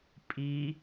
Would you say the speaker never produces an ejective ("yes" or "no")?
no